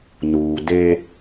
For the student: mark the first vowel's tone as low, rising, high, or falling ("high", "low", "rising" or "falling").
low